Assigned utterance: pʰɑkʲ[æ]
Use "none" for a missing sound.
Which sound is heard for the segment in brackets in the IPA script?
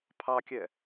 ɛ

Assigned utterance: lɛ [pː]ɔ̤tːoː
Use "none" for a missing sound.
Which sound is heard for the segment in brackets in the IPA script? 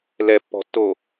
pː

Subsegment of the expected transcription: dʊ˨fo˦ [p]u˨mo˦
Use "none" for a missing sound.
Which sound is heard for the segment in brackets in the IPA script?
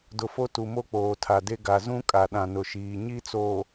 t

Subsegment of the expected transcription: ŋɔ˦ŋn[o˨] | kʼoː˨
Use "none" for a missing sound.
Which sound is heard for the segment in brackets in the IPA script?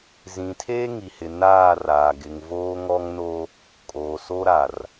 o˦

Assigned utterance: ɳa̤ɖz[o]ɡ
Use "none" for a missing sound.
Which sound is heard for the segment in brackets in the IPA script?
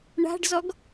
ɔ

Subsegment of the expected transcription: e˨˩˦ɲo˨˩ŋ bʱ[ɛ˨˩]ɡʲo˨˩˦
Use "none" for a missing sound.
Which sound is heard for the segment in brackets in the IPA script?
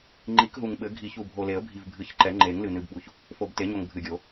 ɨ˨˩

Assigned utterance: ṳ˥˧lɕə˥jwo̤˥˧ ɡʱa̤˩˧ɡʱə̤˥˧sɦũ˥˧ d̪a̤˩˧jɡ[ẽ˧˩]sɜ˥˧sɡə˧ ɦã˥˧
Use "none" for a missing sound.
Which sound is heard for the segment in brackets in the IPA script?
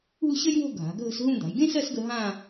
ẽ˥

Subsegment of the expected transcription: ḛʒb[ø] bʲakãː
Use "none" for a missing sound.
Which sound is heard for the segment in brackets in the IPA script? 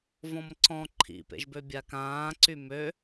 ø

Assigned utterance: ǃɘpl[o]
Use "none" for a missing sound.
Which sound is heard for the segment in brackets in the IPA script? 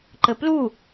u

